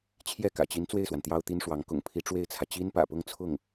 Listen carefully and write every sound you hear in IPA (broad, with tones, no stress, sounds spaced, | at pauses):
t͡ɕʰ j ɛ˥˩ k ä̰˨˩ t͡ɕ i˧˥ n t͡s w e˥˩ ɪ̯ s w a˩ n t̪ j ɑ˥ ʊ̯ t̪ i˥ n ʂ w ɑ˧˥ ŋ k ʊ̰˨˩ ŋ pʰ i˧˥ ʈ͡ʂ w e˥˩ ɪ̯ t͡sʰ ä˩ t͡ɕ i˥ n p ä̰˨˩ p ʊ˥˧ ŋ t͡sʰ ʊ˥˩ ŋ